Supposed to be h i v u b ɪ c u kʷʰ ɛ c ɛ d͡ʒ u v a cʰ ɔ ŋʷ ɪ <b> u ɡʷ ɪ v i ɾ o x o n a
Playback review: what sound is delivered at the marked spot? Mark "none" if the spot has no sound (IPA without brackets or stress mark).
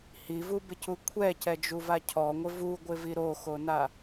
v